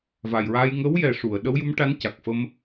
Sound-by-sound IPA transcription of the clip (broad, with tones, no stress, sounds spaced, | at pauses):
v a˨˩ j ɹ a˧ j ŋ ə˧˥ w j ɛ˨˩ ʂ u˨˩˨ ə̯ ɗ ə˧˥ w j u˧˥ m ʈ a˧˥ n c a˨˩ k̚ f ə˧ m